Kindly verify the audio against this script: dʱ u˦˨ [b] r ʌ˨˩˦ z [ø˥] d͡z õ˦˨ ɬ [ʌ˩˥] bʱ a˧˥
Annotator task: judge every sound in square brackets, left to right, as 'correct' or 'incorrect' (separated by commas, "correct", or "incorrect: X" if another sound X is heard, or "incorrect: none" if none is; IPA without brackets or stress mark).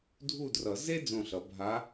incorrect: d, incorrect: e˥, correct